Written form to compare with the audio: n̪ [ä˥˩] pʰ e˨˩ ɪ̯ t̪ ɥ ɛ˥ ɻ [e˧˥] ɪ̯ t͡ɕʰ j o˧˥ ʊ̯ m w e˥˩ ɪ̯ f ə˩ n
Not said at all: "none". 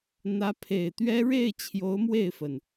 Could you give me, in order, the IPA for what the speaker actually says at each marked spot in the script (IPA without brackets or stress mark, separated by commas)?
ä˧˥, e˥˩